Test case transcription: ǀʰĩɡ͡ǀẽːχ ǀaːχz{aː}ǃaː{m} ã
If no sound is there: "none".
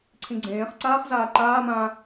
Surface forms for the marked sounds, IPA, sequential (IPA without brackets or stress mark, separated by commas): aː, m